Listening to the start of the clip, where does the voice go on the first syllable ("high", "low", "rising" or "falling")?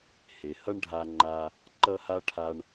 low